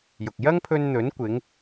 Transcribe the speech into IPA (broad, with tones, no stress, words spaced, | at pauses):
jʊ˨k̚ jɐ˥ŋpʰɵ˧nn̪ɵ˨˥nkʷɪ˨˧ŋ